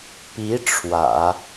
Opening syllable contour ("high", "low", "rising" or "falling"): rising